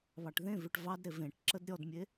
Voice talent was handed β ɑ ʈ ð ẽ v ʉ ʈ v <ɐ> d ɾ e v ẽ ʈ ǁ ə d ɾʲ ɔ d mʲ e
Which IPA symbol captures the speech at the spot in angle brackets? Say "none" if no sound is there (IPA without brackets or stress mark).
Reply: ɑ